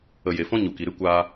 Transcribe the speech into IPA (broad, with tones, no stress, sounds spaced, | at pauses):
ə˨ j e˨ f ɔ̃˧ ɲ u˨ k i˨ ɾ ɨ˦ kʷ aː˧